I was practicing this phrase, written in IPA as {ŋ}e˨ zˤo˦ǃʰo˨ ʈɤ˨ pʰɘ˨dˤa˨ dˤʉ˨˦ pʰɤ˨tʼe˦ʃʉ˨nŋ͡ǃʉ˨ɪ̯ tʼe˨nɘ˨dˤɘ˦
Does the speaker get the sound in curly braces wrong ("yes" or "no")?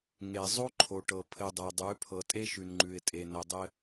no